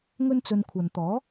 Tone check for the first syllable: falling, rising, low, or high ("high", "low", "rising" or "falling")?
high